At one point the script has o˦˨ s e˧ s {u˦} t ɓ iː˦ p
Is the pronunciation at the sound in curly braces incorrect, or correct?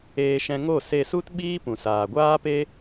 correct